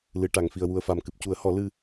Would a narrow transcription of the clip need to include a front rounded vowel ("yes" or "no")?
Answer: no